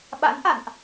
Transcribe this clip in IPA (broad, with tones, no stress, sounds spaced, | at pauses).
ɓ a̰˧˥ n ʔ a̰˧˨ n ʔ